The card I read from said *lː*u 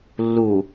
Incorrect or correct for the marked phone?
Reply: correct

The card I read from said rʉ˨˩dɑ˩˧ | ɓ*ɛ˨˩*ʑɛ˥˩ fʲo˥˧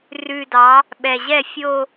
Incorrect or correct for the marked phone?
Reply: correct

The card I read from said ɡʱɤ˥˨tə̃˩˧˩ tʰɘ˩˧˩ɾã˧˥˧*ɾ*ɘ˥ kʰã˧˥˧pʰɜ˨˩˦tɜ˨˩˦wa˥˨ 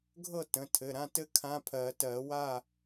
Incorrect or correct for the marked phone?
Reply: incorrect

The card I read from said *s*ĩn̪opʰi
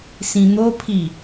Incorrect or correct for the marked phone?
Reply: correct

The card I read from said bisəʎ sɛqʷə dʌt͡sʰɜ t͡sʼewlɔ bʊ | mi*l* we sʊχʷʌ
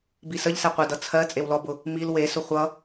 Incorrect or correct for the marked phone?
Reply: correct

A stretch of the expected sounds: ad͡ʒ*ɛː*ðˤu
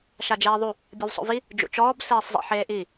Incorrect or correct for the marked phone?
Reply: incorrect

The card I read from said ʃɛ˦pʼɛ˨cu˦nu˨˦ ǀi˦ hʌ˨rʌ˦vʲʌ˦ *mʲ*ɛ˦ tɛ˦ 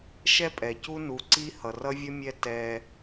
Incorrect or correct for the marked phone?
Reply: correct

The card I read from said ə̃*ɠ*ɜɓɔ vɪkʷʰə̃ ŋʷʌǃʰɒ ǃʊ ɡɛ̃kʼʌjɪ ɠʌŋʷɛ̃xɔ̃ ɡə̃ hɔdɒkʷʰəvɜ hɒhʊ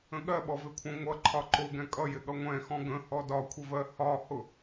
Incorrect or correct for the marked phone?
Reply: correct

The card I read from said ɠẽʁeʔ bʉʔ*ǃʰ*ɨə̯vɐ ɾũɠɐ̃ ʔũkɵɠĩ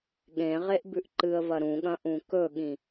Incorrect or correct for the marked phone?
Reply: incorrect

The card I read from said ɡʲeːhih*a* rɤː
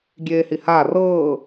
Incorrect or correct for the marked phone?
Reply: correct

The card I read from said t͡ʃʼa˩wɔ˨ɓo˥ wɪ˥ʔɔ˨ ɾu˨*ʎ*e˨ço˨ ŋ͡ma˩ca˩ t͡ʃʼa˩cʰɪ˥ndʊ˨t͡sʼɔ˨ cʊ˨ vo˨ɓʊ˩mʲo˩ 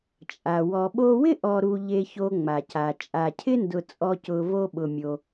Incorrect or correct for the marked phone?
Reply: correct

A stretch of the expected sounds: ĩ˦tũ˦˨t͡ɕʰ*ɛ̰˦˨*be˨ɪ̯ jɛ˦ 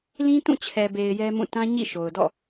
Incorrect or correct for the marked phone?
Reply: incorrect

